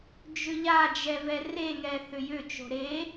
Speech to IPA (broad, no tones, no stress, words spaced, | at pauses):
d͡ʒʏʎad͡ʒɛ vɛreŋɛ θʏjʏt͡ʃo̤ ɾe